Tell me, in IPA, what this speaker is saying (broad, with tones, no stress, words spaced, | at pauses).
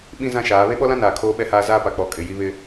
ɓĩ˦ zã˦ʃaː˨˦ βe˦ɓɔ˦lã˦ naː˨kʰoː˦ɓɛ˦haː˦ zaː˦pa˨k͡pɔ˨˦ kʼɪ˨ ji˦βɪ˦